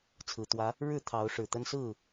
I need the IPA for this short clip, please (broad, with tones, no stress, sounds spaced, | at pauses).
t͡sʰ ɹ̩˨˩ t̪ w ä˨˦ | ɻ ɻ̩˥˨ t̪ʰ ɑ˨˦ ʊ̯ ʂ ɻ̩˨˩ t̪ ə˦ n s ɹ̩˥˨